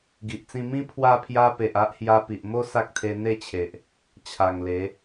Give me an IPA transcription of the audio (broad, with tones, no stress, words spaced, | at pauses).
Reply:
ɡi˨ʔt͡sĩ˧mĩ˦ pʰwa˧pʰja˧ pe˨ʔa˦ʔhja˧ pi˨ʔmo˦ sa˦k̚t̪ʰe˧n̪e˥˧t͡ɕʰe˨ʔ | t͡ɕʰa˨˩ŋle˨˦